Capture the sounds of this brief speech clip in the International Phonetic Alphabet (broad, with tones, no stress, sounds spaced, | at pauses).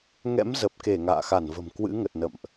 ŋ ɛ̰˧˥ m z ə˨˩ p̚ k e˧˩ ŋ a̰ː˧˨ x a˧˩ n v ə̤˨˩ m k w ɨ̰˧˥ ŋ ə˨˩ t̚ n ə̰˧˨ m ʔ